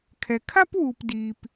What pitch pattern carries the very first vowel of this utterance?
low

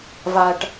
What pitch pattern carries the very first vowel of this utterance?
low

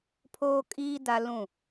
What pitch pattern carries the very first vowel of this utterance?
high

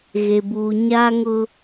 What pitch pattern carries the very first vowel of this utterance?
low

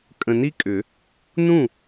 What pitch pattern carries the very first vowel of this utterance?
low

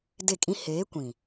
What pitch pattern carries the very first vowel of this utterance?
falling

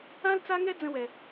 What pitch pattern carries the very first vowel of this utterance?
high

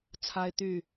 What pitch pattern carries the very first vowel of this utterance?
high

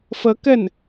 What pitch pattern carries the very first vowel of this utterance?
rising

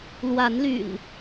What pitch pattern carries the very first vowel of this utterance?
rising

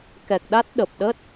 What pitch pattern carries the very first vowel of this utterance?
low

